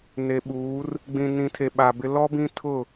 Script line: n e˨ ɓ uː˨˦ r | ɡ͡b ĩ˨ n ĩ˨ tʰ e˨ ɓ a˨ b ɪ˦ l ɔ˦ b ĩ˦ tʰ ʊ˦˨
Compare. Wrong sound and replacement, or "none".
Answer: none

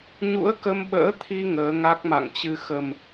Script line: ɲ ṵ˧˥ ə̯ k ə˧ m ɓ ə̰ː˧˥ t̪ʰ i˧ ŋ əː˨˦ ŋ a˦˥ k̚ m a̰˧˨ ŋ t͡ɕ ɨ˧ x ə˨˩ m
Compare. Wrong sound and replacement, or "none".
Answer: none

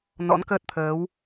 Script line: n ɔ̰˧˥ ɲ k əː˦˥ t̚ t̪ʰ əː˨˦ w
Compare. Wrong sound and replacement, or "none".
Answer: ɲ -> n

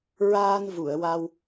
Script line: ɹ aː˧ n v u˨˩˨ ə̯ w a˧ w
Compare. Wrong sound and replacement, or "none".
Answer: none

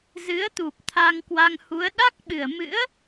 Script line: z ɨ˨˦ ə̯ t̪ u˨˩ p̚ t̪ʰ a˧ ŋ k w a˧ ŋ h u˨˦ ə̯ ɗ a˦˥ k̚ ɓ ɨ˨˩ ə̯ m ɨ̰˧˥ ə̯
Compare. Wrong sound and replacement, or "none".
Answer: none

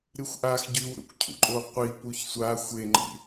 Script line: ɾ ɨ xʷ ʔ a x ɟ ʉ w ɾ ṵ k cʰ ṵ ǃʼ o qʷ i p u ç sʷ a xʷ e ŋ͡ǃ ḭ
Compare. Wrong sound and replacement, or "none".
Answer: none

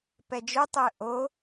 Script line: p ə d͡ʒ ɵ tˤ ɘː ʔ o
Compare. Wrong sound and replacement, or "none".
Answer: ə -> ɛ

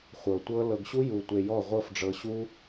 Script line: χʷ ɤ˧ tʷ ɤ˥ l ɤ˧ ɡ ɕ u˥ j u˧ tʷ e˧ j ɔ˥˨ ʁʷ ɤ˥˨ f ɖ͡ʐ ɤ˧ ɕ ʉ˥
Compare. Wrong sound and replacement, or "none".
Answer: ʉ˥ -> u˥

